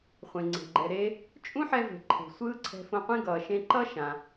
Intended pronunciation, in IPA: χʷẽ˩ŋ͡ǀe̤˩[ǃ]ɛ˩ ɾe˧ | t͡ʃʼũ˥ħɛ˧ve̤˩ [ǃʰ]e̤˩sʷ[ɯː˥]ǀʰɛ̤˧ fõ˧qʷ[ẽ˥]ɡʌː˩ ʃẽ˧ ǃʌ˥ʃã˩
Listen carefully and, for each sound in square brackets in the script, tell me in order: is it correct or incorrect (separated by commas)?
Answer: incorrect, correct, correct, correct